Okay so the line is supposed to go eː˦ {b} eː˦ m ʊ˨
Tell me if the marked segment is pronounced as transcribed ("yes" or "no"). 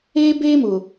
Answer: yes